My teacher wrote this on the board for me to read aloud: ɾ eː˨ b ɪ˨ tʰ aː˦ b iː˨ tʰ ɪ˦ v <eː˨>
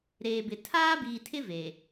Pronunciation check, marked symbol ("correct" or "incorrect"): correct